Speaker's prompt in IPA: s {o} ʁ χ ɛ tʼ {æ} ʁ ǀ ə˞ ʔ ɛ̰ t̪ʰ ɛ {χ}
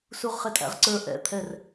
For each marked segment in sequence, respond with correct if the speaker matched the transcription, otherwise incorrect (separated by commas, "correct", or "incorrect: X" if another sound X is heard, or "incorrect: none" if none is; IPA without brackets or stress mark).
incorrect: u, incorrect: æ̰, incorrect: r